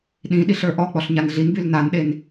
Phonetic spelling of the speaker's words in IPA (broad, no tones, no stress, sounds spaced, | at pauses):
ɗ ĩ ɗ i ɬ ə˞ ʔ ɔ k͡p ɔ ɬ ɲ a n ɮ i n b y l n a n ɗ e n